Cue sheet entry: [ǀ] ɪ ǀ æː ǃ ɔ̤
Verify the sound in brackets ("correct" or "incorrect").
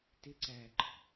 incorrect